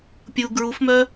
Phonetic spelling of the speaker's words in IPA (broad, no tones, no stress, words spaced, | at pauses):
pʲu ɡɹufmœ